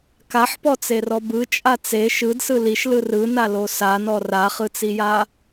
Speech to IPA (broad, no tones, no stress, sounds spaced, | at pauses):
k a ħ p ɔ t͡s e r ɔ b ɯ t͡ʃʼ a t͡s e ʃ ɯ d s ɯ l i ʃ l ɯ r ɯ n a l o s a n ɔ r a χ ɯ t͡s i j a